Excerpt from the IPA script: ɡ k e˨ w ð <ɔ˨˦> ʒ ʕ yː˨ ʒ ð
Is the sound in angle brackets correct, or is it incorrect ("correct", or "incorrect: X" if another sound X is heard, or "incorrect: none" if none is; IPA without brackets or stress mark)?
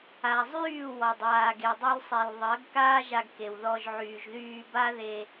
incorrect: ɔ˧